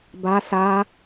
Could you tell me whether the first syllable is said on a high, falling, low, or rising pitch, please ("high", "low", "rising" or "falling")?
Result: high